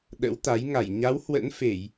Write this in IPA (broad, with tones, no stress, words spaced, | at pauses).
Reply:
ɗə̰˧˥wt̪a˨˦j ŋa˧˩jɲa˨˦w hwə̰˧˥nfe˧˩˨j